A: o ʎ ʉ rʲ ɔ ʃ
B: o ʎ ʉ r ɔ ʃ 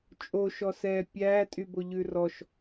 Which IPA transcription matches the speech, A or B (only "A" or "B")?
B